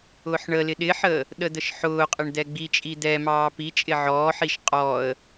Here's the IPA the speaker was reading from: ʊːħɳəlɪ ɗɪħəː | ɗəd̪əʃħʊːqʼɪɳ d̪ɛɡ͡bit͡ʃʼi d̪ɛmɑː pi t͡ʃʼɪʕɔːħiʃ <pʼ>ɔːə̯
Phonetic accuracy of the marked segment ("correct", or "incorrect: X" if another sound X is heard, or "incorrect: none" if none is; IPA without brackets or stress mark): incorrect: qʼ